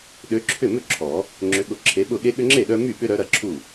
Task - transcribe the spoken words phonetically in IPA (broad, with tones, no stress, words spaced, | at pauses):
ɗø˨˦ǁʰʏ˥˩mʏ˥˩ ǁʰɔ˨˩˦ | ŋ͡ǁʏ˨˦ɠʊ˨˦ǁʰe˨˦ɓʊ˥˩ ɠe˦ɠʏ˦ŋ͡ǁe˥˩ɗœ˦ my˥˩ɓʏ˦ɾœ˨˦ ɾɐ˦ǁʰu˥˩